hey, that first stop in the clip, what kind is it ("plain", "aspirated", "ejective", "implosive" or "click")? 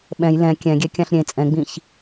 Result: implosive